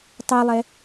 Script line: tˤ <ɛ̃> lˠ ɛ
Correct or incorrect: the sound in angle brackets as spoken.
incorrect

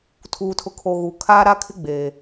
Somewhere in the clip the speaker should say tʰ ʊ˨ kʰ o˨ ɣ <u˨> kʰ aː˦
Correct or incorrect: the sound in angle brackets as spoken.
correct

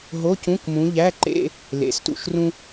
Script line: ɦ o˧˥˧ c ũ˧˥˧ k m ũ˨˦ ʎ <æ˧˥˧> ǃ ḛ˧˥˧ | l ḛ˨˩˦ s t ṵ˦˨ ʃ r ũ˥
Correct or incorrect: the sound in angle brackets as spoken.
correct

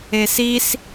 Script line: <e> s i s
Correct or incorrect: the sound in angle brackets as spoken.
correct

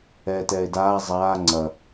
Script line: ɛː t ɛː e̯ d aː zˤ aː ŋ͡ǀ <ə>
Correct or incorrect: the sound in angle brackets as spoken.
incorrect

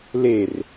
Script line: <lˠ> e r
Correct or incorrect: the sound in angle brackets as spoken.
incorrect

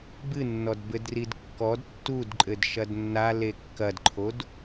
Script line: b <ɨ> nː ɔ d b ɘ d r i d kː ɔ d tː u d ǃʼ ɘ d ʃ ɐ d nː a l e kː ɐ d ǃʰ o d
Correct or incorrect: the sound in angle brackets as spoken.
correct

